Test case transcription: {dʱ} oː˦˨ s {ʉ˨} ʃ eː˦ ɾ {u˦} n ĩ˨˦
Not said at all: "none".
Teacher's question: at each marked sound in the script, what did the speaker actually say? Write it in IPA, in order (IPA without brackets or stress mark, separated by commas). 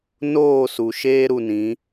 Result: n, u˨, u˧